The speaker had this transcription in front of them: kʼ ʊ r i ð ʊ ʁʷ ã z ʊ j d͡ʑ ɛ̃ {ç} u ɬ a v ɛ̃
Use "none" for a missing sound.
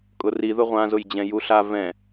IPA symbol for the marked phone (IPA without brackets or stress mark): j